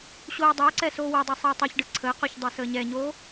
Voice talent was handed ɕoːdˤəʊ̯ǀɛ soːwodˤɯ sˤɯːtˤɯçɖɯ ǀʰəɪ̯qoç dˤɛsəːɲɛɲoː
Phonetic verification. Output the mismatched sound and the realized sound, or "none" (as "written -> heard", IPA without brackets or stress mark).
none